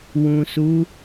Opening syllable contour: low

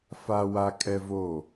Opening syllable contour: high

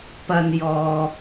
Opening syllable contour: low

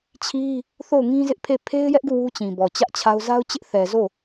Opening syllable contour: high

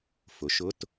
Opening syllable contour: rising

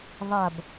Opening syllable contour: low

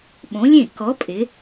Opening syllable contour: rising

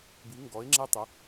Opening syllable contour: rising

